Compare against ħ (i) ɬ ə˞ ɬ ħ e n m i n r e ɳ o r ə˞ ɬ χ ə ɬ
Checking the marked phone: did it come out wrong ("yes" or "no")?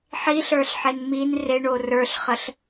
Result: no